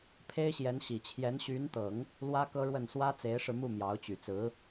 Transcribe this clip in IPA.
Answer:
pʰe˥ɪ̯ɕjɛ˧˥n ɕi˨˩ t͡ɕʰjɛ˧˥nɕy˧˥nt̪ɤ˨˩˦ŋ | lwä˥kɤ˥ɻwə˥˩n swä˥ t͡se˧˥ɪ̯ʂɻ̩˧mu˥˩ mjɑ˧˥ʊ̯t͡ɕy˨˩ t͡sɹ̩˧˥

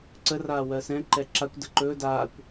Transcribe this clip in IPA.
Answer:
ǀəraː wɜsɛ̃ ǃɛǁakʷ dəǃɵː daːkʷ

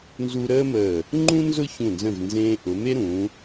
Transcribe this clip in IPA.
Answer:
nzu˧ ɾəː˥məː˧˩ | ŋ͡ǃũ˥nzʊ˥˧çũ˧˩nzə̃˧˩v nzẽː˧ʔʊ˩˧me˥ ɾũ˩˧

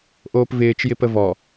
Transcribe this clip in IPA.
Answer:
ʔoːpvɪːt͡ʃ jɪpəvɔ

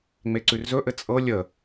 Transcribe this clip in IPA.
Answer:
ŋ͡meǀʉrzɵʔɘ t͡sʼɤ lʲə

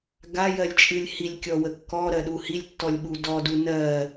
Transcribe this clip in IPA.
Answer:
ɡajɜlʲt͡ʃʼɨlʲ hilʲkʲɔwə kːɔɾɜɗu hilʲtːɔlʲɓu dɔdu nɜ

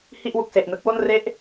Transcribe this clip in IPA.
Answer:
hi˥˩ʔwu˨˩k̚se˨˩ʔnɯ˦˥k̚ wo˥˩nre˥˩ʔ

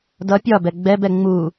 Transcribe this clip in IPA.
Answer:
dʌ pʲɒbɛ ɡ͡bɛbɛ ŋ͡mu

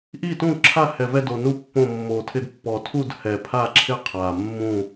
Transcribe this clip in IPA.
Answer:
ʔi˦˨tũ˦˨ǁʰa˦˨ hɛ˨˩vɛ˦˨ do˨˩nu˦˨ pːõ˦˨ mːo˨˩tʰɪ˦˨d pːɔ˨˩tʰu˦˨d hɛ˨˩pʰa˦˨ǁʰɪ˦˨ qʰa˨˩ mːũ˦˨

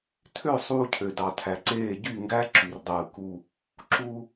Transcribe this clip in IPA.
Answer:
tʰø˦˨ sˤuː˦ cʰø˨dɑ˨tʰæ˨ǀeː˦˨ ɟy˦˨ŋɡæ˦ ǁy˨rdˤɯː˨ ku˦ | ǁu˦

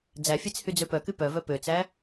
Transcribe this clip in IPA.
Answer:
d͡zæfʲet͡s hyd͡zøpœky pœvœ pøt͡sæ

